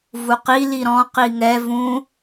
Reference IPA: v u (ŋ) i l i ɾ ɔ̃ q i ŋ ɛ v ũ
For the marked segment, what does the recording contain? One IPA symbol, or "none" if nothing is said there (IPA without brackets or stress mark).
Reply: q